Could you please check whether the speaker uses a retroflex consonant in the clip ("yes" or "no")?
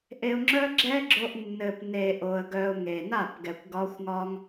no